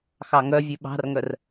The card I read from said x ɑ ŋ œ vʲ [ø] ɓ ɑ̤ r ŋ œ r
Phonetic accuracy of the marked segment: incorrect: ʉ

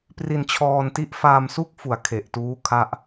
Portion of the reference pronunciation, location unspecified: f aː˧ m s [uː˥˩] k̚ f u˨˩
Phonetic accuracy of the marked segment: incorrect: u˥˩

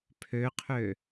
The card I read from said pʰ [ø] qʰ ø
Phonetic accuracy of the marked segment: correct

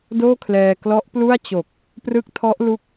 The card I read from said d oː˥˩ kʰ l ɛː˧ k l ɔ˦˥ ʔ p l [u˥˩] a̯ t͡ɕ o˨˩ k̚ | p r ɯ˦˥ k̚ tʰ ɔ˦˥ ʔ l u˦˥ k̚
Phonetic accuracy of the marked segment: correct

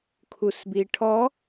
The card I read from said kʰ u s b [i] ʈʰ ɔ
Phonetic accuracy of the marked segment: correct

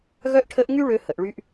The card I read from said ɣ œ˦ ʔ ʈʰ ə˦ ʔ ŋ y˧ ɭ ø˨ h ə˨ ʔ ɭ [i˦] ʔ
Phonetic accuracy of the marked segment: incorrect: y˦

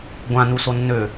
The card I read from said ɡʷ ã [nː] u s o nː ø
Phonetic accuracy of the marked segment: incorrect: n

